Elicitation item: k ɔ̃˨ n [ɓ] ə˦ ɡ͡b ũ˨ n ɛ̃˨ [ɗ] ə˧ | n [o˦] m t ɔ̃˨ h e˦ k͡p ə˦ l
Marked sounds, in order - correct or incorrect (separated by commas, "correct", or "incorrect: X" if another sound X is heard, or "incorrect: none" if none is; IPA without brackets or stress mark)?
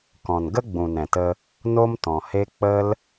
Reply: incorrect: ɡ, incorrect: t, correct